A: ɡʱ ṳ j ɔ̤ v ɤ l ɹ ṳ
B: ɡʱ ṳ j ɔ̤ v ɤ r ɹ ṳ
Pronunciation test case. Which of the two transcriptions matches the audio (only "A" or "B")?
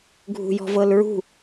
A